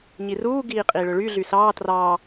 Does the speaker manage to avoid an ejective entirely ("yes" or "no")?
no